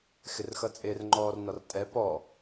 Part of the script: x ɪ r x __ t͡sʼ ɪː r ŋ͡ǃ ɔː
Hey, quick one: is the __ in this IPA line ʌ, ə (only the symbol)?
ʌ